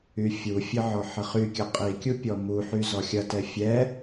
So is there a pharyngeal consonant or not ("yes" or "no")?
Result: yes